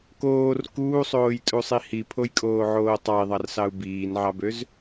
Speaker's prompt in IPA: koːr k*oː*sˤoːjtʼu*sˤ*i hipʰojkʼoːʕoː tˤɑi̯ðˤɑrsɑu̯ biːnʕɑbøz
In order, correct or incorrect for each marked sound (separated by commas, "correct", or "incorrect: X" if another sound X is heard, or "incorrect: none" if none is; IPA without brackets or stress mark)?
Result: incorrect: uː, correct